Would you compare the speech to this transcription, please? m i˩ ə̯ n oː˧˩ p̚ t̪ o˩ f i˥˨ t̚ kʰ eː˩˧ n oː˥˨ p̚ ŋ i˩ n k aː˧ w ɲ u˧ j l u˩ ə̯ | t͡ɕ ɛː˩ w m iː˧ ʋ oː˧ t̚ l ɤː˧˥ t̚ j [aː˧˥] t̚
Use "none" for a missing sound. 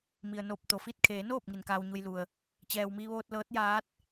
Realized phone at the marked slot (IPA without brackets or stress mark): aː˧˥